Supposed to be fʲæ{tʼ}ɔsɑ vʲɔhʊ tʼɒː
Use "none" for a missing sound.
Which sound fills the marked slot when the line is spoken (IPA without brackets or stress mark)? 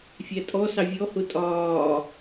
tʼ